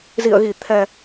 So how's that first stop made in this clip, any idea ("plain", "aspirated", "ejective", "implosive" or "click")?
aspirated